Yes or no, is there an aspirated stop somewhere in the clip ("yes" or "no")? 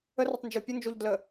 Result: no